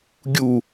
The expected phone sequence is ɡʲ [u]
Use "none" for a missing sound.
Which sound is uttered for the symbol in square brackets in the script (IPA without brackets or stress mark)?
u